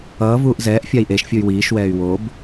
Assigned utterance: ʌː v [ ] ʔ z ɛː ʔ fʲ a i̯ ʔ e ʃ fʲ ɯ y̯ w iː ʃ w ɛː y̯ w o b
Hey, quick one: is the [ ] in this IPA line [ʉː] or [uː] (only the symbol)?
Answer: uː